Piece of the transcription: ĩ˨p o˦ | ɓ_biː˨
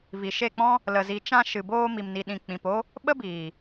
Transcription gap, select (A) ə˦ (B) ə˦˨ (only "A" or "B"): A